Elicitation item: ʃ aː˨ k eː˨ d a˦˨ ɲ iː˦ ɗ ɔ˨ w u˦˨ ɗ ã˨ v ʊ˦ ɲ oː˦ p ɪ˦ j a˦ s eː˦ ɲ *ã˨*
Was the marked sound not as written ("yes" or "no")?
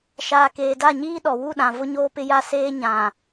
no